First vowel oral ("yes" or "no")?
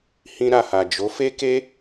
no